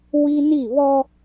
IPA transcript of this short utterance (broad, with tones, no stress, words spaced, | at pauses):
wi˦ni˦˨βɔ˦